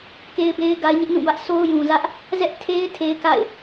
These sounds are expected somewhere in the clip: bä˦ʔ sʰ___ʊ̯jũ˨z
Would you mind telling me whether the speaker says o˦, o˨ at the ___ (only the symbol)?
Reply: o˦